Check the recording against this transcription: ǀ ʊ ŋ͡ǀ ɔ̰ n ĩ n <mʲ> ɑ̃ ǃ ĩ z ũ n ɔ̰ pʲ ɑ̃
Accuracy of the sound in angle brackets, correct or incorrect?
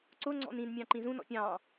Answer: correct